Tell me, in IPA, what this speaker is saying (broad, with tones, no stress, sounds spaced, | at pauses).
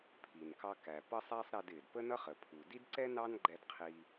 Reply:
pʰ i˩ n k ɑ˧ k æ˩ p ʌ˥ sˤ æ˥ sˤ ɾ ɛ˧ d ɪː˩ d p ə˥ n ʌ˥ χ ə˩ pʰ u˩ d i˥ d ǀ ɛ˥ n ɑ˥ n ɡ͡ǃ ɛ˧ d qʰ i˧